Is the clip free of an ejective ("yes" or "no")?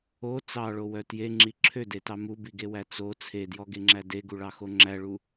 yes